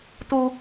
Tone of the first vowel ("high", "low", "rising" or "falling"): high